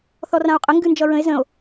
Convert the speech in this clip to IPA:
θɔrão̯qʼə ŋɡɨnd͡ʒʌɹə̃e̯ zə̃o̯

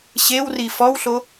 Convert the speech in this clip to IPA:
ɕewri fɔwɬo

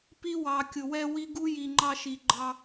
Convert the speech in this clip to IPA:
pi˦wɑ˨kʲʊ˨ wɛ˦wi˦ɡu˦ ji˨ŋ͡ǃɑ˦ ʃi˨ɡ͡ǃɑ˦

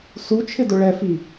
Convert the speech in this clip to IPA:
su t͡ʃʰɪdʊɭɛfi

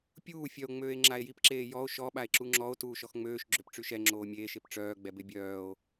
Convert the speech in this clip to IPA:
pʲuː fʲœo̯ŋ͡møːe̯ ŋ͡ǁae̯jipǁeː jɔo̯ ʃɔɓae̯ǁu ŋ͡ǁɔo̯ tuːʃɔxŋ͡møːʃ ɡ͡ǁøpʈ͡ʂyʃɛ ŋ͡ǁoːmʲeːʃep ʈ͡ʂœːɡ͡bɛ bebʲœːo̯

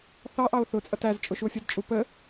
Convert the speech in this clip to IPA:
θɑʔɑo̯ θʊt͡sʼʌt æz t͡ʃʼʊʃuo̯fʲʌdt͡ʃʼu pə

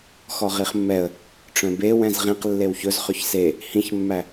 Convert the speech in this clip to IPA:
xɔʁiχmːɛə̯ | ʈ͡ʂœ̃be wɛ̃zʁĩq lːewçɵz χɵçse | hĩçmːæ

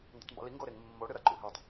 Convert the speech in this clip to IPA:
ndatˤmbṵli ŋɡoɾeŋ mːo ɽɨɾɐ ǃṵɦitˤ

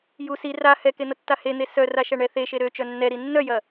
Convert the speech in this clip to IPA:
ju si ra hɛken̪ɐtːa hen̪e sœraʃɐɳɛ θeʃe ɾøt͡ʃœ nːɛɾi nːœjɐ

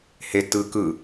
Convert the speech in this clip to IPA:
hetːɯː kɯ

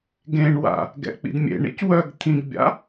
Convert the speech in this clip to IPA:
ɡẽɳwa̰ | ɡɛ̰k͡pḭdmʲḛɳḭc wœɡ t̪ʰĩɡbʲa̰

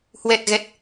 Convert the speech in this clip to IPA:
hwɛ˨˩t̚ɣɛ˨˩t̚

